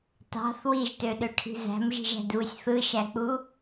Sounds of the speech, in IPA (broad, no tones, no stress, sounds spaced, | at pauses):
t ɑ̤ θ w i ʒ t ø ɗ ø ʈʰ i̤ z æ̤ m ʒ i̤ ʒ æ̤ d β ɯ sʲ θ ɯ ʃ æ k͡p u